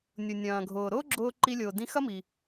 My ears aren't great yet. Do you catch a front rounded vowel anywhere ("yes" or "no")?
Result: no